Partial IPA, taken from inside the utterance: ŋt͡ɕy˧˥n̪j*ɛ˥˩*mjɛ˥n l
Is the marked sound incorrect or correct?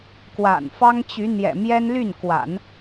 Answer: incorrect